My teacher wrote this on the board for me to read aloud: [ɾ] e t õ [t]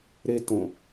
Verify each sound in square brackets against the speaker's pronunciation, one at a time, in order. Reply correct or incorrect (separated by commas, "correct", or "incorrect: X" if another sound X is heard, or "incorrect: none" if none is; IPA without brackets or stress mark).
correct, incorrect: none